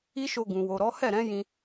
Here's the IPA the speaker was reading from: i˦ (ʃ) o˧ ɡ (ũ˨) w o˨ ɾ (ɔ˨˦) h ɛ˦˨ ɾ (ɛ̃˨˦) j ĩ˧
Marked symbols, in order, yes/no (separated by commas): yes, yes, yes, yes